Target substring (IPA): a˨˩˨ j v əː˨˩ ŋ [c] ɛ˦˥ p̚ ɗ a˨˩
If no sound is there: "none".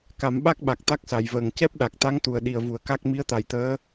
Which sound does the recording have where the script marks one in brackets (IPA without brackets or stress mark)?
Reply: c